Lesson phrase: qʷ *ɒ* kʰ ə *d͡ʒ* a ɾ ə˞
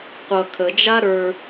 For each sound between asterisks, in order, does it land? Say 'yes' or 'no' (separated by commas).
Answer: no, yes